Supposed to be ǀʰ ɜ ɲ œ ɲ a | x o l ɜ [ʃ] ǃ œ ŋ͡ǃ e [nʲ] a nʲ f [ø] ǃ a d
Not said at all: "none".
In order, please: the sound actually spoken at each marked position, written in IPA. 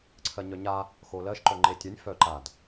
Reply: ʃ, tʲ, œ

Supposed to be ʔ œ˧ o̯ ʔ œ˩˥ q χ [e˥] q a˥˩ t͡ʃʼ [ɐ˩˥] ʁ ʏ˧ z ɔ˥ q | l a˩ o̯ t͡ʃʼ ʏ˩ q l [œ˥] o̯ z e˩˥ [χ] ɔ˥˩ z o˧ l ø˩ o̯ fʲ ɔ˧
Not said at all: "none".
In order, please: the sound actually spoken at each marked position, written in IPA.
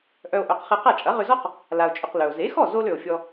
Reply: e˧, ɐ˩˥, œ˩, x

